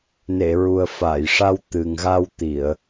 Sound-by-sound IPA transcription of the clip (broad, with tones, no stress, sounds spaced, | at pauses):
n e˨˩˨ ɹ u˨˩ ə̯ f a˨˩˨ j ʂ a˧ w t̪ ɨ˨˩ ŋ ɣ a˧ w t̪ i˨˩˨ ə̯